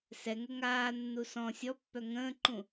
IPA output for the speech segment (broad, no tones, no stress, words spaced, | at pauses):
sɛŋɛ ŋaːnːu sɔ̃ sʲɔpːœ ŋə̃ːǃũ